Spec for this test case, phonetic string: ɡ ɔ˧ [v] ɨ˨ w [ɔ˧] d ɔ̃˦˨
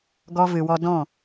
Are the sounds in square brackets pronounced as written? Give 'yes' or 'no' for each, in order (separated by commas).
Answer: yes, yes